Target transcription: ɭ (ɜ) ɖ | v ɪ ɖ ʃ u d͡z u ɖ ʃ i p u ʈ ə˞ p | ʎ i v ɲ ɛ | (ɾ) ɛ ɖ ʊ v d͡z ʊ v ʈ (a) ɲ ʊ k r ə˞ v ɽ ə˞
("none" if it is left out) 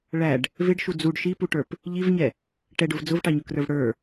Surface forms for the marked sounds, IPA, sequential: æ, ʈ, ɑ

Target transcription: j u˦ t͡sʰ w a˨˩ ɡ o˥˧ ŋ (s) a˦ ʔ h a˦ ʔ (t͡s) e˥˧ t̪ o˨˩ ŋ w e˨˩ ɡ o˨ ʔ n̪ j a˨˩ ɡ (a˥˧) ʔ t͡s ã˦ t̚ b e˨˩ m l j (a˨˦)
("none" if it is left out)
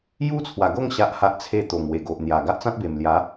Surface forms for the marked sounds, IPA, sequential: ɕ, t͡sʰ, a˦, a˨˦

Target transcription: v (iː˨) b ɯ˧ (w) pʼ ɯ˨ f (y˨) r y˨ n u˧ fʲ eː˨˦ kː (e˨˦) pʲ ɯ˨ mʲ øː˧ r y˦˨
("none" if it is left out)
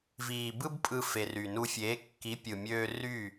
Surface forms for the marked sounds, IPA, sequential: iː˨, b, e˨, i˨˦

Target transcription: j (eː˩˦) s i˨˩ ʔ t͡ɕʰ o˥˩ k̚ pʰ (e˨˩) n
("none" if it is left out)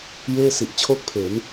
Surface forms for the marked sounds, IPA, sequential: eː˥˩, e˩˦

